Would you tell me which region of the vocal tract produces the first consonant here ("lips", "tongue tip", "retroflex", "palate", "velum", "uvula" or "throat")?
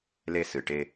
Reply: tongue tip